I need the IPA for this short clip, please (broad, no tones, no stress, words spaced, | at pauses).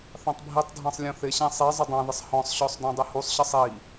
θɑ̃tˤbʱitˤdʱɑ̃sˤ lʲɔ̃θɪɕæ̃ sˤi zˤʌdˤɑ̃ðɪsˤ hɔ̃sˤɕɔsˤ dɔ̃dˤɪhusˤɕʌsˤ i